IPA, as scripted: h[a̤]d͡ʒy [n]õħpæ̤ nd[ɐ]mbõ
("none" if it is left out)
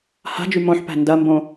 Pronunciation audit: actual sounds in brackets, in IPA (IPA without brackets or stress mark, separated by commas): a̤, m, ɐ